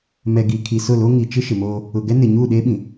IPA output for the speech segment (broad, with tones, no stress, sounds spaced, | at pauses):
m ɛ˨ ɡ i˨ kʰ i˨ s ʊ˦˨ l o˦ ŋ i˨ t͡ʃ ɪ˦ ʃ ɪ˨ m oː˦ | ʊ˨ ɡ ɛ˦ n ɪ˨ ɲ uː˦˨ ɗ eː˦ ɓ ĩ˨